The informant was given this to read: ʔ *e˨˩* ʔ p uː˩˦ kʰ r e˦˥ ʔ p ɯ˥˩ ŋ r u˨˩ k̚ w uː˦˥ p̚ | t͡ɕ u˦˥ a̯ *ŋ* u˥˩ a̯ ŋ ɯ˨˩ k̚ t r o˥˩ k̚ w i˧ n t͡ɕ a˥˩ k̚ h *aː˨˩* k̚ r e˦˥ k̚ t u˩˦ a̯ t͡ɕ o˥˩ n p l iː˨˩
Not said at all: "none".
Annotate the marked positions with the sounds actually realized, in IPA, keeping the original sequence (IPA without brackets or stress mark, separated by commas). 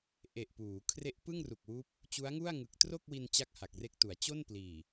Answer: e˨˩, ŋ, a˨˩